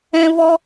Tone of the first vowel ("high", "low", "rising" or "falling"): high